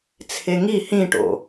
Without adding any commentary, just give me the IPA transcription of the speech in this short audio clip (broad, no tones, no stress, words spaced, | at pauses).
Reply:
t͡sʰeŋi hĩʈo̰